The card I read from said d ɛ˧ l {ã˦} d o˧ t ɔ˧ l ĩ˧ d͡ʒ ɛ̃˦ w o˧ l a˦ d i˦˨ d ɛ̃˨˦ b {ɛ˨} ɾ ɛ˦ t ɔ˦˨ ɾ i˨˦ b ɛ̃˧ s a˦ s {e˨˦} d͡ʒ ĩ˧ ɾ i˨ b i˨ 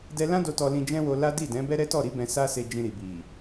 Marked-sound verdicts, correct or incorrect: correct, incorrect, incorrect

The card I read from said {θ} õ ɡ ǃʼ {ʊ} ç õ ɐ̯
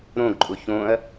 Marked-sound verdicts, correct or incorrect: incorrect, correct

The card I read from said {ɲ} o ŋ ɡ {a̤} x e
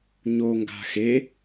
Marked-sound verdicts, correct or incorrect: correct, correct

